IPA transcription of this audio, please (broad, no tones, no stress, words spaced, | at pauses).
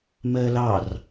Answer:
mɜlɑr